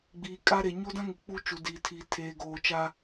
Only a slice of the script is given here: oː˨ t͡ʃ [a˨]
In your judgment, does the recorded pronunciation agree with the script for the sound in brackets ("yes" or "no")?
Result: no